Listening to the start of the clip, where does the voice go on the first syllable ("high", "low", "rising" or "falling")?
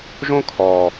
high